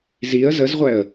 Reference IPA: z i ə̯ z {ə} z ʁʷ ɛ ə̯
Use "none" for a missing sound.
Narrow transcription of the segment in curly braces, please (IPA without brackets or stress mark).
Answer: ə